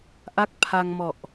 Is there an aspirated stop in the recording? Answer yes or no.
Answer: yes